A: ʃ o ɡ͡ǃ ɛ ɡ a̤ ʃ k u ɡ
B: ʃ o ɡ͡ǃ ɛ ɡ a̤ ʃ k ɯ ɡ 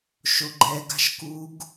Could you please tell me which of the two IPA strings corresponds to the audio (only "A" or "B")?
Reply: A